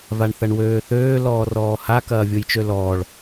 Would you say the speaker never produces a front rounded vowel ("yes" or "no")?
no